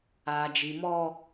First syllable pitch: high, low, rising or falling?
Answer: low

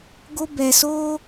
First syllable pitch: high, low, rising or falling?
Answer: high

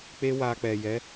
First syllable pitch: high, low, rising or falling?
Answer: high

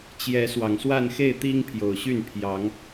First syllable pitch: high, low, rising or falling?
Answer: rising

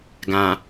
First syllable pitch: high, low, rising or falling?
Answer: low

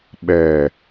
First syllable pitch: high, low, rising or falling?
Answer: low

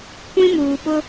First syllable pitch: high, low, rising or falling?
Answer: high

